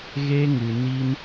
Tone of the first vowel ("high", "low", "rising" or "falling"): high